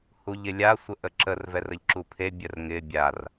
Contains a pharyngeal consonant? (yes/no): no